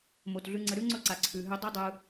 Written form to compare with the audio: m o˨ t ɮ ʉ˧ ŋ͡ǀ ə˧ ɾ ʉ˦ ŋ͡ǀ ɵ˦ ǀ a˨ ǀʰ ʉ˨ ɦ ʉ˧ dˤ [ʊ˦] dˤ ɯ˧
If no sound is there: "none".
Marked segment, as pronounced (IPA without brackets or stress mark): ɵ˦